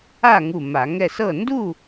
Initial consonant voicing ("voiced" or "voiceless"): voiced